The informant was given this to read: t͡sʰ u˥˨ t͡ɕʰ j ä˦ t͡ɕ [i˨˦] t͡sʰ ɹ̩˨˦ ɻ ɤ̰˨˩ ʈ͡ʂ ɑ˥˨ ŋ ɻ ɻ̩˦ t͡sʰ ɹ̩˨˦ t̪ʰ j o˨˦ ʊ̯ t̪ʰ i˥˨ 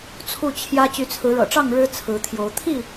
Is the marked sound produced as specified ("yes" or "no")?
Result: no